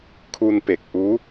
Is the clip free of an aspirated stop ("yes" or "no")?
no